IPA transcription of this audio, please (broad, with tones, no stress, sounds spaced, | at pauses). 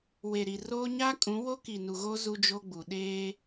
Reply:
w e˨ ɾ i˨ r oː˦ ɲ a˦ kʼ ũ˨˦ w o˦ k i˨ n u˨ ɣ o˦ z u˦ d͡ʒ o˦ ɡ͡b u˨ ɗ eː˦